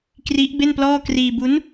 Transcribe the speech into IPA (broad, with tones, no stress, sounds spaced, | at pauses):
k r i˦˥ ʔ b e˥˩ n p l ɔː˥˩ k r iː˧ b u˦˥ n